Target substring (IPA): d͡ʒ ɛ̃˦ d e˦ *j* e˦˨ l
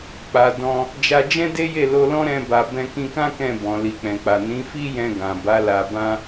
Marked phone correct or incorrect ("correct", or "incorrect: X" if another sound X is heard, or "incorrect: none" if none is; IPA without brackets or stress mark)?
correct